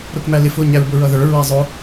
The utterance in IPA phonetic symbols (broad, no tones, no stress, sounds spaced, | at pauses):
ɾ ʊ k m æ l ɪ f ʊ ɲ æ ɹ b ʊ ɹ ʌ ð ə˞ ɹ ɛ zˤ ʊ